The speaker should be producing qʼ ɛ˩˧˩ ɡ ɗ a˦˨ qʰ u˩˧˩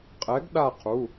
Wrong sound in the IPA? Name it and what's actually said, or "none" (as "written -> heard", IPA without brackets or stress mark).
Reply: ɛ˩˧˩ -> ɛ˨˥